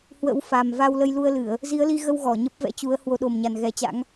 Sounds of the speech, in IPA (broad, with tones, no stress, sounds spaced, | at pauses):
h w ə̰˧˥ w f a˨˩ m v a˧ w l ə˧ j l u˧ ə̯ l ɨ˧˩˨ ə̯ | z i˨˦ ə̯ l i˧ ɣ ə˧ w ɣ ɔ˧˩ ɲ ə˦˥ p̚ v ɛ̰˧˥ t͡ɕ u˨˦ ə̯ h w o˨˦ ɗ o˨˩ m ɲ a˨˩ n ɣ ɛ˨˦ t͡ɕ a̰˧˥ ŋ